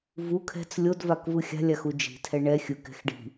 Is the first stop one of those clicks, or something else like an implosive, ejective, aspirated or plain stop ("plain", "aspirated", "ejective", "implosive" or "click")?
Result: aspirated